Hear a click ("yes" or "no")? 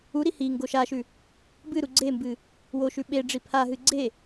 yes